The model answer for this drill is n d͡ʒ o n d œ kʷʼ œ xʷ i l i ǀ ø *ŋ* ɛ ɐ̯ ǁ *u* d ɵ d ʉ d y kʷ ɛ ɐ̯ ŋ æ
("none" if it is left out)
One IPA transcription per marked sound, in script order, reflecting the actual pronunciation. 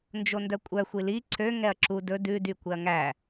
ŋ, u

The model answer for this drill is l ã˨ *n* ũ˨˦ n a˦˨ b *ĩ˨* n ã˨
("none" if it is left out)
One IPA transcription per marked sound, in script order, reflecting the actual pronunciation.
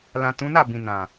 t, ĩ˨

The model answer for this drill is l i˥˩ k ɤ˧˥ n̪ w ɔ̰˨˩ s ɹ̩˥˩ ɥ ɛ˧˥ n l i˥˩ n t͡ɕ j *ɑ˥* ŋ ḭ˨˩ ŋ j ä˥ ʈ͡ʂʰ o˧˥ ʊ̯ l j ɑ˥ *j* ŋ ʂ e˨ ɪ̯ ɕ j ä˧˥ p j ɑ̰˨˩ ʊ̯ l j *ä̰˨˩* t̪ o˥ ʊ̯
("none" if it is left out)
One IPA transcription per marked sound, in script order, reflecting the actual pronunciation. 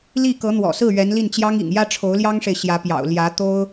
ɑ˥, none, ä˧˥

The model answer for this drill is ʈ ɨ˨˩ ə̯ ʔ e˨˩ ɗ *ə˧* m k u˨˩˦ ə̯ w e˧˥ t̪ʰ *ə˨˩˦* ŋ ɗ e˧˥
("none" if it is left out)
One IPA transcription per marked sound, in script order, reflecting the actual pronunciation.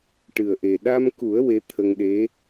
a˧, ə˧

